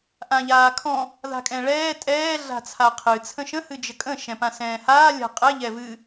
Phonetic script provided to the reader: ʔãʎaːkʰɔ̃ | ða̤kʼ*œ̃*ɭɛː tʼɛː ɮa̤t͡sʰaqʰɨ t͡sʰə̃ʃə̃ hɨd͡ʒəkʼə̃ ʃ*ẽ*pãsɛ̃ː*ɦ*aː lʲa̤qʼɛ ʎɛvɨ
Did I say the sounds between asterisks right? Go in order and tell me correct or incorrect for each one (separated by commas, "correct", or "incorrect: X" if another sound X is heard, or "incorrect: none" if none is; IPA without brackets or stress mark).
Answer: incorrect: ɛ̃, incorrect: ɛ̃, incorrect: h